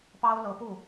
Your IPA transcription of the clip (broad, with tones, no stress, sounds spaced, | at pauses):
p ɑ˥ ʊ̯ l ɤ˧˥ p u˥˩